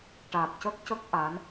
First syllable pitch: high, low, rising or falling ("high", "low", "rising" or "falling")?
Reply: low